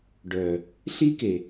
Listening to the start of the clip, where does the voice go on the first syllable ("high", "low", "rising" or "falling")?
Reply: low